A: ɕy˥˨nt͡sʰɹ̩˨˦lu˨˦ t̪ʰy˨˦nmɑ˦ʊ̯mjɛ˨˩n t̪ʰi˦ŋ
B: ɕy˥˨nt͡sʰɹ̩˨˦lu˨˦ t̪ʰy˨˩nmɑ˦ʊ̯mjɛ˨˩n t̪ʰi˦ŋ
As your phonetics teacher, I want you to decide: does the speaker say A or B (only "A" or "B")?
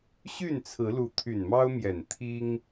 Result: B